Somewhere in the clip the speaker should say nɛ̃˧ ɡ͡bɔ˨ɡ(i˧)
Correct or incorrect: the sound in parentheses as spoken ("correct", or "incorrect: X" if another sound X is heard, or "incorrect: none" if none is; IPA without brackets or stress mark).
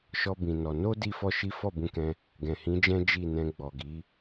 incorrect: i˨˦